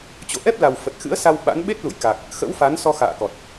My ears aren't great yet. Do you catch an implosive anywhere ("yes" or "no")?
yes